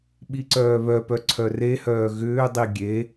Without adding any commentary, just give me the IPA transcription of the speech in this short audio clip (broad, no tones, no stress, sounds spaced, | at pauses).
ɓ i ǀ œː β œ p œ ǀʰ œ r e h œː ɣ ʏː dˤ i ɡʲ e